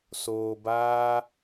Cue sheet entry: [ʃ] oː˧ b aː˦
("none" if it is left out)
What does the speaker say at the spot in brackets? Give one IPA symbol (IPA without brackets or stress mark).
s